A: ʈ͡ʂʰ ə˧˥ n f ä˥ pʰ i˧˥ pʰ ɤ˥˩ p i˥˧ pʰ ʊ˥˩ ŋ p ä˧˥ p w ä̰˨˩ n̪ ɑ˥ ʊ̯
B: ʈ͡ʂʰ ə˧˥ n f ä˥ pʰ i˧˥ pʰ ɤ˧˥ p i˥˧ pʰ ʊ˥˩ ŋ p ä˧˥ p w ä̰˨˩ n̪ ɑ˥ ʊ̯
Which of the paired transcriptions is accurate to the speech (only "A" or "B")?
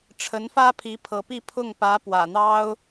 B